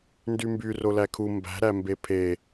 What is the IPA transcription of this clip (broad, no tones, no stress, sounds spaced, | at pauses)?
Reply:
n d y m b y r o l æ kʰ u m b æ̤ ɾ æ m b e pʰ e